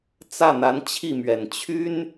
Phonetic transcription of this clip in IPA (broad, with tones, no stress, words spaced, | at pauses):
t͡sä˥˩n̪a˧˥n t͡ɕʰi˥˩mɥɛ˨˩n t͡ɕʰy˥n